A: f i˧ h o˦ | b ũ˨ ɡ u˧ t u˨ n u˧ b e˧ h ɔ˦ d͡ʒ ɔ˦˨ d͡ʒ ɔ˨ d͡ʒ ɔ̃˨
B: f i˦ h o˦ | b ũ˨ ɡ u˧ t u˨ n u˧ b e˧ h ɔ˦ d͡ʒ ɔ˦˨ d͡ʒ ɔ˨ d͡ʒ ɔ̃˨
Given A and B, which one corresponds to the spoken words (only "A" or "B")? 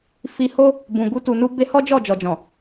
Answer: A